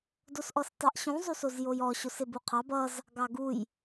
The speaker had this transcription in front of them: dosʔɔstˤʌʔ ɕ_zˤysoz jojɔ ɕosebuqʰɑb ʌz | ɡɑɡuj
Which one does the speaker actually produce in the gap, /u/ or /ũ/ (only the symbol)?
ũ